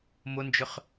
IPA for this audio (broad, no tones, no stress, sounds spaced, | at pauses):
m ʊ n d͡ʒ ʏ χ